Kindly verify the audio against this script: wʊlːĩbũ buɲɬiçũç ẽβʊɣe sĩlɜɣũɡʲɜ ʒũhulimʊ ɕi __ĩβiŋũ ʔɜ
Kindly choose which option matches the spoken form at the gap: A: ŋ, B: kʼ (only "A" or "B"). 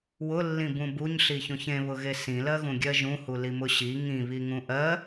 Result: A